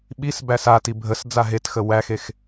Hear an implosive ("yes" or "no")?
yes